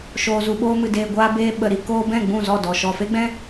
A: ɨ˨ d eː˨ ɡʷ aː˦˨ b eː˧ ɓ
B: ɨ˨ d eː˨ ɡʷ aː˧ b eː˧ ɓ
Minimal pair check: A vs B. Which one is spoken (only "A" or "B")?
B